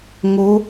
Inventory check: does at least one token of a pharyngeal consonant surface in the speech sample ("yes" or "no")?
no